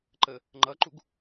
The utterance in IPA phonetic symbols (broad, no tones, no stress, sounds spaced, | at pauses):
ǃ ə | ŋ͡ǃ ʌ ǃ u ɡ